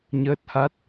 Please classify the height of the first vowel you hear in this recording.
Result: mid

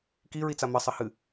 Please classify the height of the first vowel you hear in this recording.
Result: high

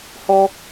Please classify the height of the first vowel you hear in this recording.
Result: mid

